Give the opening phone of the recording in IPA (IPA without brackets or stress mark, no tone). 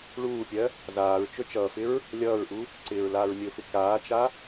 ɭ